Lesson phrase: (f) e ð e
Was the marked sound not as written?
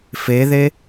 no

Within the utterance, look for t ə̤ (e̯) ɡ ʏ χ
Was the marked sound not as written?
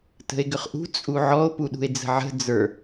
no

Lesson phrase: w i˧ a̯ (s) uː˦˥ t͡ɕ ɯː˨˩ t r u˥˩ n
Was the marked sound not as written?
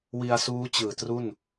no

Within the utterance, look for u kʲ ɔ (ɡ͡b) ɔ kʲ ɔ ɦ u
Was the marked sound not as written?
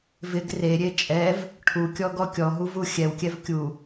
yes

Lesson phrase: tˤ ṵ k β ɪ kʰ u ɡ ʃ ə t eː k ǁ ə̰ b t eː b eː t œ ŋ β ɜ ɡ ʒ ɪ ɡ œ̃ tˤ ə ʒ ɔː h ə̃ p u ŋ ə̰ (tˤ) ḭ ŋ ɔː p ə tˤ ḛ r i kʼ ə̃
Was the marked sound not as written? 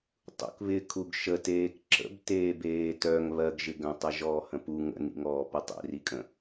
yes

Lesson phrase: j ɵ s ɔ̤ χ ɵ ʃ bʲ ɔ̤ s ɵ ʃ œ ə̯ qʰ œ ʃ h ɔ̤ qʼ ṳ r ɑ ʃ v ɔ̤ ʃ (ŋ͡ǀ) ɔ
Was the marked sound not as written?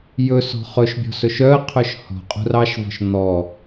yes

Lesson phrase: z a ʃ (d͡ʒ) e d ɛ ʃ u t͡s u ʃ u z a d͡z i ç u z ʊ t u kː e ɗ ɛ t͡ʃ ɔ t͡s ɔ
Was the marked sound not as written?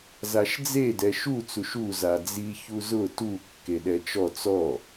yes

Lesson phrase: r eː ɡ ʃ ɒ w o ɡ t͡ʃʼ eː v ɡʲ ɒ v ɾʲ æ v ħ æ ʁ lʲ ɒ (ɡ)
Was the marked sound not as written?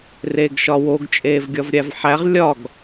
no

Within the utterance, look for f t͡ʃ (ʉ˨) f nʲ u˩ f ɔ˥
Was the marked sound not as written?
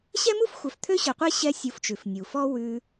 yes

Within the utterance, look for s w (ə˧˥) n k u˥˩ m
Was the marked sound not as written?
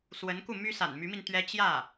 no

